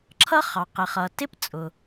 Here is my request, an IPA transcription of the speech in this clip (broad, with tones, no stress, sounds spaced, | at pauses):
ǁʰ ʌ˥ χ ɑ˩ q ɪ˩ χ ʌ˩ t ɪ˥ p t͡sʼ ʊ˩